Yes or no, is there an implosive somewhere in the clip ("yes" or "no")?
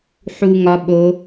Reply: yes